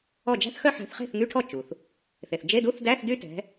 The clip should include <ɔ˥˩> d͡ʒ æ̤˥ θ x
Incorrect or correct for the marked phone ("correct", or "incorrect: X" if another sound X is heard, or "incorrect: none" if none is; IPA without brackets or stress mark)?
correct